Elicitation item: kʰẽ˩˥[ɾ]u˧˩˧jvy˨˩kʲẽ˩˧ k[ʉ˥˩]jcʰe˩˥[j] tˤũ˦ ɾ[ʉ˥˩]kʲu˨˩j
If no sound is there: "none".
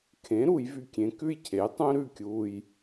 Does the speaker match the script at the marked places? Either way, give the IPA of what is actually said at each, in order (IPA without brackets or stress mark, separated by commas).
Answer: ɾ, ʉ˥˩, j, ʉ˥˩